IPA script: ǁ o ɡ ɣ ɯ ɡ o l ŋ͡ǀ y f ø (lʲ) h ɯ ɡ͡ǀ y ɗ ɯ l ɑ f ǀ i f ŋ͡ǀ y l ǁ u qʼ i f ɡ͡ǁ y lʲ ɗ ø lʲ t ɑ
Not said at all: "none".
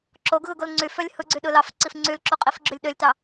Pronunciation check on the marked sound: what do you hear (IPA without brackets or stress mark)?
lʲ